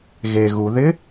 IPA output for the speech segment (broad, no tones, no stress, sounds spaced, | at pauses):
ɣ e ɣ u ð ɪ